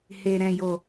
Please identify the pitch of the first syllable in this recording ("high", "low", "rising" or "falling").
low